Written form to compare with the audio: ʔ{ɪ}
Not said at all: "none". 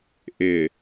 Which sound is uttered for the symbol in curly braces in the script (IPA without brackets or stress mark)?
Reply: ɪ